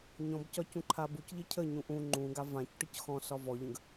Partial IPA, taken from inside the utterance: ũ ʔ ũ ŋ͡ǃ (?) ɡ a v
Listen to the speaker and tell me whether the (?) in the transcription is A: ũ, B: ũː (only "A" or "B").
B